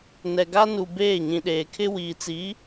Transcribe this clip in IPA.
nɛ˨ɡa˦nu˨ beː˦˨ɲĩ˨ɗeː˨kʰɪ˦ wiː˨t͡siː˨˦

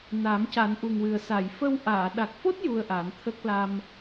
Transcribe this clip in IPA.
na˨˩˦mca˨˩˦nʔu˨˩ŋwɨ˨˩ə̯ sa˨˩˨jfə˧w ʔaː˨˩˨ɗa˨˩k̚fo˦˥t̚ ju˧ə̯ʔa˨˩˦nt̪ʰə˦˥k̚ la˧m

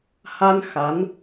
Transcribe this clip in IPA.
ha˧n xa˧˥n

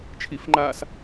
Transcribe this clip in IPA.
t͡ʃʰifŋ͡ǃaːs

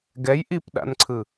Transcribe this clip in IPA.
ɡɛj ʔipɗa̰nǀʰɯ

